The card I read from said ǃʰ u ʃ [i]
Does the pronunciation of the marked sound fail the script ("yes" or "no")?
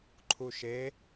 yes